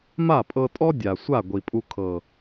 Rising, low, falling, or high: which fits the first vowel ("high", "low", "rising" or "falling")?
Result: falling